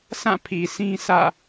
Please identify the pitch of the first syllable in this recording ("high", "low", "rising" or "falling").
falling